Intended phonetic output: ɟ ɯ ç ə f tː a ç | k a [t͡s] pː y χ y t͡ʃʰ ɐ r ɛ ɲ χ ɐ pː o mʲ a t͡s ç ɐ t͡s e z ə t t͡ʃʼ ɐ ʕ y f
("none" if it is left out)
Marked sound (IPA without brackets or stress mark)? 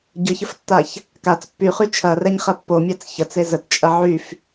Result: t͡s